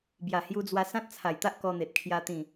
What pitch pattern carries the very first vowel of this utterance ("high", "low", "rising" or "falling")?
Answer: low